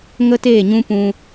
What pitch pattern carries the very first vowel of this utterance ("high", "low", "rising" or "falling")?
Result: high